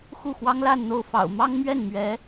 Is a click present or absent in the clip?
absent